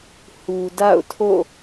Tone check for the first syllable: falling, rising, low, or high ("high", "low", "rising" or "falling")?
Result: low